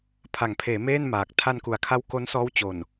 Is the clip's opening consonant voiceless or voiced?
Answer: voiceless